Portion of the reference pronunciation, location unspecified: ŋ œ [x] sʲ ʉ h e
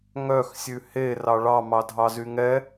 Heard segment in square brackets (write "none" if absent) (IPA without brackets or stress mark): x